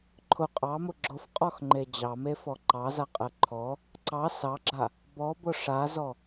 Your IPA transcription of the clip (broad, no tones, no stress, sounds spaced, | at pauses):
ǃʰ ʊ qʼ ɑ m ʊ ɡ͡ǁ ʊ f qʼ ɔ x ŋ͡ǃ e d͡ʑ ɑ m e f ɔ ǃ ɑ z a qʼ ɜ ǃʰ ɔ | ǀ ɑ s ɑ ɡ͡ǁ a | b ɔ b ʊ ʂ a z ɔ